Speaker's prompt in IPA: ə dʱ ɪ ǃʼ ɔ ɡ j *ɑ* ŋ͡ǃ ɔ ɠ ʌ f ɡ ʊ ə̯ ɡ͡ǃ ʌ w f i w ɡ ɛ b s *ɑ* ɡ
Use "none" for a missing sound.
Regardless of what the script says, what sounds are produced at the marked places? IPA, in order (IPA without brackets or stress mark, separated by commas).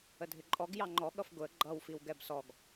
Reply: ɑ, ɔ